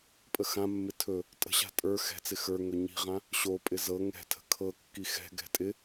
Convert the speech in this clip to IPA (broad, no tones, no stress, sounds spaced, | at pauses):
pʼ ə x ã mː ɪ tʰ ɵ | tʼ ə̤ ɕ a̤ tʼ ə˞ x ɛ̤ t͡s ɪ x ə˞ ŋ ɵ ɲ i̤ ʁ ã | ɕ o pʼ ɪ z ɤ ŋ ɛ̤ tʰ ə̤ kʰ ɤ kː i x ɛ̤ ɡ ɛ̤ tʼ ɪ